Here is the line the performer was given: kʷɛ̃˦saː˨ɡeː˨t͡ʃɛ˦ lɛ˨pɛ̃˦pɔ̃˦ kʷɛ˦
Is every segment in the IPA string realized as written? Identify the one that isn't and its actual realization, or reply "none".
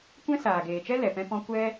none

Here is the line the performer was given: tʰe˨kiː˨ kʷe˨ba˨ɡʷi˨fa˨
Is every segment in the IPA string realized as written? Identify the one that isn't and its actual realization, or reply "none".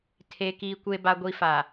none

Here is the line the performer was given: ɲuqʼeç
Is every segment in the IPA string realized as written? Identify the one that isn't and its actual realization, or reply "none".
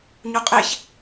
none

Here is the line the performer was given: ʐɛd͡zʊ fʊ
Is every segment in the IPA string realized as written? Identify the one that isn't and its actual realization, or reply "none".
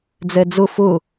ʐ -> d͡z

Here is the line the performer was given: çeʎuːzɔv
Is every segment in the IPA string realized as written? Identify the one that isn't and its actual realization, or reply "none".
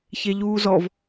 none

